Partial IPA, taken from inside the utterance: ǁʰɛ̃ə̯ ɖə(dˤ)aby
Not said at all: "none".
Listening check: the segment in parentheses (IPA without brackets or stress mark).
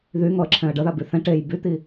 ð